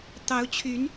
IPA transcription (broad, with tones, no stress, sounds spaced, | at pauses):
t̪ ɑ˧˥ ʊ̯ t͡ɕʰ y˧˥ n